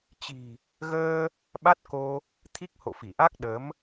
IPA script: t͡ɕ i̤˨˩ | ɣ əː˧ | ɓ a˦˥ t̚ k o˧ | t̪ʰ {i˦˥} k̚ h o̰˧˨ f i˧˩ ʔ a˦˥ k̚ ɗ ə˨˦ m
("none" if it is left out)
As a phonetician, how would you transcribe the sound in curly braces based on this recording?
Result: i˦˥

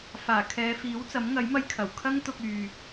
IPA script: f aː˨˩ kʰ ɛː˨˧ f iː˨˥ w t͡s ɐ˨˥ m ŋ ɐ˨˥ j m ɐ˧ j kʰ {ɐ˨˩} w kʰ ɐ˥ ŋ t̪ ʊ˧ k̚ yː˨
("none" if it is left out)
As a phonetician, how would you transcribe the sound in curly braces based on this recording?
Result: ɐ˨˩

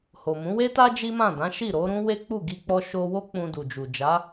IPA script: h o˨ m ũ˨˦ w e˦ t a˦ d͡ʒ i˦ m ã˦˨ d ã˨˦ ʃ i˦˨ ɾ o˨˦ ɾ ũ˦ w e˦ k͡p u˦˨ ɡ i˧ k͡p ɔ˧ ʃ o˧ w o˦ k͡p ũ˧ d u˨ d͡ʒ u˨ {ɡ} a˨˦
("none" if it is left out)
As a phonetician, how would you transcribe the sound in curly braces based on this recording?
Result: d͡ʒ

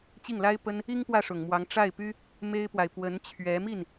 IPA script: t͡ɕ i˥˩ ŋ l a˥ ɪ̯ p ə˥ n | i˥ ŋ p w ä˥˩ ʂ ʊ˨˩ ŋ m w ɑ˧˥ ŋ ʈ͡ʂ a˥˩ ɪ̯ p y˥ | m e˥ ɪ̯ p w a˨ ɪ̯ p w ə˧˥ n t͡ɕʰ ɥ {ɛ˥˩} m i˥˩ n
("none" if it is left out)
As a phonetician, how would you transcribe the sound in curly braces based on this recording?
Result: ɛ˧˥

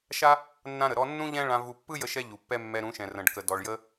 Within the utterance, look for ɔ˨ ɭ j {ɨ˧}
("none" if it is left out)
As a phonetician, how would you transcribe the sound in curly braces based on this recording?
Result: ə˧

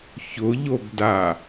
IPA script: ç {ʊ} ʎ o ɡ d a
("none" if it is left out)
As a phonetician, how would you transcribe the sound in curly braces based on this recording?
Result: ʊ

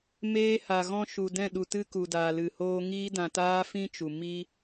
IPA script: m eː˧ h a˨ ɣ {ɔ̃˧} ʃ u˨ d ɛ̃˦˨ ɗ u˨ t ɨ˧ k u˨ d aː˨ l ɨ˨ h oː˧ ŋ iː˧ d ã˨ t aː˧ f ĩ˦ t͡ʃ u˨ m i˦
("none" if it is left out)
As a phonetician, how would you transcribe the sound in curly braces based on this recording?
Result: ɔ̃˧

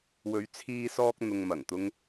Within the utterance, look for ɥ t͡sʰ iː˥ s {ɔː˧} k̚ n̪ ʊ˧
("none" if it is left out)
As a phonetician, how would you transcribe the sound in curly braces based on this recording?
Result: ɔː˥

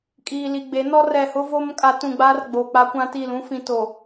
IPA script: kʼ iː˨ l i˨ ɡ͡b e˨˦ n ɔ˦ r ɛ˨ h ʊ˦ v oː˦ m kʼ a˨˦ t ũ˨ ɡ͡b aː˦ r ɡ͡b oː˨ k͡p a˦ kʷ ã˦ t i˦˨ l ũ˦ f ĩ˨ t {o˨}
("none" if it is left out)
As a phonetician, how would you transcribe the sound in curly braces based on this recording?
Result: o˨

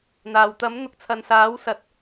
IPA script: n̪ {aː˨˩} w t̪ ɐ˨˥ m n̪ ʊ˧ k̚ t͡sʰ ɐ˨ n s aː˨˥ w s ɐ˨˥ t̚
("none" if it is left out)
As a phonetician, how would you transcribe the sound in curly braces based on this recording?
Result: aː˨˩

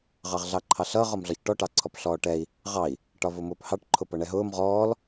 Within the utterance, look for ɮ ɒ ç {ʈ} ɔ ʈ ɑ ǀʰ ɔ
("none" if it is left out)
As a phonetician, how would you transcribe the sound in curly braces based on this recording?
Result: ʈ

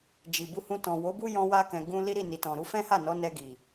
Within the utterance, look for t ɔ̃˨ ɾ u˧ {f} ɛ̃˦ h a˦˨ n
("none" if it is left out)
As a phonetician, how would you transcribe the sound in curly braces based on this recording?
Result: f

